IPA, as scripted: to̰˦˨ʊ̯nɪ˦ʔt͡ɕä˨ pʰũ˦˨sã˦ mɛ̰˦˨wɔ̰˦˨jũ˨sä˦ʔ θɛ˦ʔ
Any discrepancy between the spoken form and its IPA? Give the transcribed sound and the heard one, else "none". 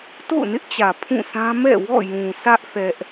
none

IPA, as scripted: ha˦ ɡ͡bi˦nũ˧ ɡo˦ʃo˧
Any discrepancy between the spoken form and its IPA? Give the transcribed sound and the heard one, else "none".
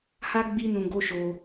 none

